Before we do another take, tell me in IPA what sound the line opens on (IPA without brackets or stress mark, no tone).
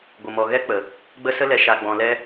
ɡʷ